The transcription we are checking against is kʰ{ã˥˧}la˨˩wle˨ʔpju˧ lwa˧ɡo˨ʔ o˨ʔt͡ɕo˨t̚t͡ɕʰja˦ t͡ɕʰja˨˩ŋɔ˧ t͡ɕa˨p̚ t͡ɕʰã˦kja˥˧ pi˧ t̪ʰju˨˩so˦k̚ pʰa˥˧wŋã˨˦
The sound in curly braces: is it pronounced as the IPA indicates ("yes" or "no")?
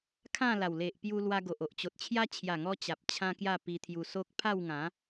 yes